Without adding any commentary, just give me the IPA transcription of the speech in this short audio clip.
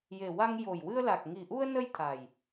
j e˨˩ w a˧ ŋ j o˨˩ j w ɨ˧ ə̯ l a˨˩ k̚ ŋ i˨˩ ʔ u˧ ə̯ n ə˧ j t̪ʰ a˨˩ j

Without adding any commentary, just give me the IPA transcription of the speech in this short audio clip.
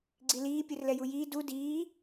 ɡ͡ǀ i l iː pʲ ɯ r l ɛ j u j iː d u d iː

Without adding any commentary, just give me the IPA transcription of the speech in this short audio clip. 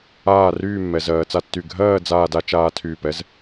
aː˥˧ r yː˥˧ mː ɛ˩˧ z ɜː˩˧ t͡s a˧ tː y˧˩ ɡʱ ɜː˥˧ d͡z aː˥˧ d a˥ t͡ʃ aː˥ tʰ yː˧˩ p ɛ˥ z

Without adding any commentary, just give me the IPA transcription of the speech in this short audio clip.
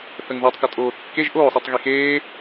θ ə ŋ ð u tˤ k ə tʼ oː θ kː e ʒ ʔ oː sˤ i tˤ ɣ i x eː

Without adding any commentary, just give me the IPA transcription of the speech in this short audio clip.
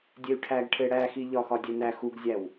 dʲ e y̯ ʈʰ æ ɡ ʈʰ e ɽ æ x i ʎ ɒ x ɒ dʲ e n æ x u ɡ zʲ æ w

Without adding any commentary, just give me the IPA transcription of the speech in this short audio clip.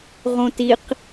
ʁ õ t i q

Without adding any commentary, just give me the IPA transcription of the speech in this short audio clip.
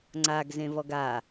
ŋ͡ǀ a ɡ z ẽ v ɔ ɡ a

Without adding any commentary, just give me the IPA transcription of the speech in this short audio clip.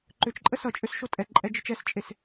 ǃ ʏ t͡ʃ ǃʼ ə s ʌ t͡ʃʼ ø s ʃ o tʼ ɛ ǃʼ ɛ d͡ʒ ɘ t͡ʃ ɛ s t͡ʃʼ e s

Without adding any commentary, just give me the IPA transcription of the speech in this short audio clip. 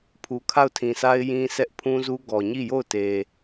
pʰ u˨ kʰ a˦˨ ʊ̯ tʰ ĩ˨ s a˦ ɪ̯ j ĩ˦ sʰ ɛ˦ ʔ pʰ ũ˦ z u˦ ɡ ɔ˨ ɲ i˦˨ j o˦˨ ʊ̯ t e˨

